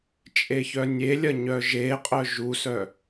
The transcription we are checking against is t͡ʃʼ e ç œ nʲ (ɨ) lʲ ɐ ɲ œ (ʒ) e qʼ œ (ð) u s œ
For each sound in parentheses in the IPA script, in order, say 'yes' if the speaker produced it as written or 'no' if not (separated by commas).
no, yes, no